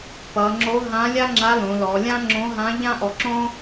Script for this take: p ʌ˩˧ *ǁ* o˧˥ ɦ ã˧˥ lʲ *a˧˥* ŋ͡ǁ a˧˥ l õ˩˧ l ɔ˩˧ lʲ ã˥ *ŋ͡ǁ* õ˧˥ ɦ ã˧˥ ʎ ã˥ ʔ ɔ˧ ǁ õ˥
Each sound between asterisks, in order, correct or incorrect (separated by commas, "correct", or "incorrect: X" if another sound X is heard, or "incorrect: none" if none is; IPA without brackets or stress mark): incorrect: ŋ͡ǁ, incorrect: a˥, correct